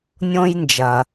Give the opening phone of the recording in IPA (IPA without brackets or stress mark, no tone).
nʲ